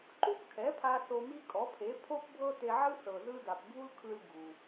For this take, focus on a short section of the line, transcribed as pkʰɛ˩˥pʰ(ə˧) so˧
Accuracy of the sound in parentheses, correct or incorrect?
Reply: incorrect: a˧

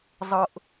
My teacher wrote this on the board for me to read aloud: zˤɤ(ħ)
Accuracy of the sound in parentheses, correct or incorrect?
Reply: incorrect: ʔ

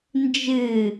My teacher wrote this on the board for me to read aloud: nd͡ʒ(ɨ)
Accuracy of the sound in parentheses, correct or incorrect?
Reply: correct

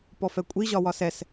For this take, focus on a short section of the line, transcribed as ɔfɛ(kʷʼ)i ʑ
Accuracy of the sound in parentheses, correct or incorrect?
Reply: correct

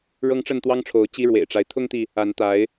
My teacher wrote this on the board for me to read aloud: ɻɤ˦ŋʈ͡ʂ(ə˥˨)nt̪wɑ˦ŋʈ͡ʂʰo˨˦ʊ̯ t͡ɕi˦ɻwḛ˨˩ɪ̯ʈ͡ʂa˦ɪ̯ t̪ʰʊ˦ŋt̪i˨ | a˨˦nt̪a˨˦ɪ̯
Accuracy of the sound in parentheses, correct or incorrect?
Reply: correct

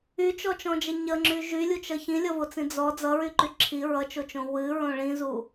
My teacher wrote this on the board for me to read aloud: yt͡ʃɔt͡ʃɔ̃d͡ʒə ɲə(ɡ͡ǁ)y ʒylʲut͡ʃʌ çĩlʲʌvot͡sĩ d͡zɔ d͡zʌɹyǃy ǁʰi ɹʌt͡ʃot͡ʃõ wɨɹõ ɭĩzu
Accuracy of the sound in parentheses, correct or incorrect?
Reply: incorrect: ŋ͡ǁ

